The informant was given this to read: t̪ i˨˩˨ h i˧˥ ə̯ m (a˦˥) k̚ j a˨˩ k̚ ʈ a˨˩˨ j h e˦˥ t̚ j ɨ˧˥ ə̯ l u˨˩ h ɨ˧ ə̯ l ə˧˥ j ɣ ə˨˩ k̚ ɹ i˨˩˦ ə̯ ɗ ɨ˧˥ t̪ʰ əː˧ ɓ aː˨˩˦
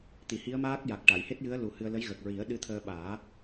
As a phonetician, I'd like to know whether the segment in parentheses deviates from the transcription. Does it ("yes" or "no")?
yes